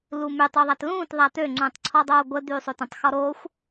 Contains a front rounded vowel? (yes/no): yes